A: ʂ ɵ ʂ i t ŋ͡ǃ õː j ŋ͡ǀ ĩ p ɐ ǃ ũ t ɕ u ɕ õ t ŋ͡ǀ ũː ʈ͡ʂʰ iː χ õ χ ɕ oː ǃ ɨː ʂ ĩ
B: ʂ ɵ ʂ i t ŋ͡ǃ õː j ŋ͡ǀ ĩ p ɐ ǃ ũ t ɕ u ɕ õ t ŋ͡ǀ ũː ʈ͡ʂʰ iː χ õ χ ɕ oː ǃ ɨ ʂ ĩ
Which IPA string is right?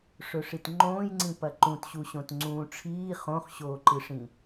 B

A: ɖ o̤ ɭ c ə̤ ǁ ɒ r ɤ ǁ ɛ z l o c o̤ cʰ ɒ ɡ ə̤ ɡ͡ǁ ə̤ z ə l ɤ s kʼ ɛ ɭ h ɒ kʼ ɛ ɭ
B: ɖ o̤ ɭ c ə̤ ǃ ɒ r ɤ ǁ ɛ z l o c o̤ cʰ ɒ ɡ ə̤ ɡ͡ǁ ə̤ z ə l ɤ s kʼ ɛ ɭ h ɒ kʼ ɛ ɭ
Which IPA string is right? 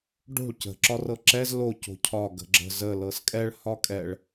A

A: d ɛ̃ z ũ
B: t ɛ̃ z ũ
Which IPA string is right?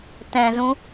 B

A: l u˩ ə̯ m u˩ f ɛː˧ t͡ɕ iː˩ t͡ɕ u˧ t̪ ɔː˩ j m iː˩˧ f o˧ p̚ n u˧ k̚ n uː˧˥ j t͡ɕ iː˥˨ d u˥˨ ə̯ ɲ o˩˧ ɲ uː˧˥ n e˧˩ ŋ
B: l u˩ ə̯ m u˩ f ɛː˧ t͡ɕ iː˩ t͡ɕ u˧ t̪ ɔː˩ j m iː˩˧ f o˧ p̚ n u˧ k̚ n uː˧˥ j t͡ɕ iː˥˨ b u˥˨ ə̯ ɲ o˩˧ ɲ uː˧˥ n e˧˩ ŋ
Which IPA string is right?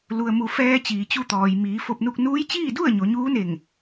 A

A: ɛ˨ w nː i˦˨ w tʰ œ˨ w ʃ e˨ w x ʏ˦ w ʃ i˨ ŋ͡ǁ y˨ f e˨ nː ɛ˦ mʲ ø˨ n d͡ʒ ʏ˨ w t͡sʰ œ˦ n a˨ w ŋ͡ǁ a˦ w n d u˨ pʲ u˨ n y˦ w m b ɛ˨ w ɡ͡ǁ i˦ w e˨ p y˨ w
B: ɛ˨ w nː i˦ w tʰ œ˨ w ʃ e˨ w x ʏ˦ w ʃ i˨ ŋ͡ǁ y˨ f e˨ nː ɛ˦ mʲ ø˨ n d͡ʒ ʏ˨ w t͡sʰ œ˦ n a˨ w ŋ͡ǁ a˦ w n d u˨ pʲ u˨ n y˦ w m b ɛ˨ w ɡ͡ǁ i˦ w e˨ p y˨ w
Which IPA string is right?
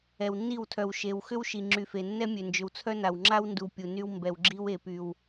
A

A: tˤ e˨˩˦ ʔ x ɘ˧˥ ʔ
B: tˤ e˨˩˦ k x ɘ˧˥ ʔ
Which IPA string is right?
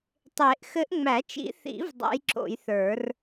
A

